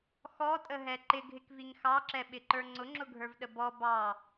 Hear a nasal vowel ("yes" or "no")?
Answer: no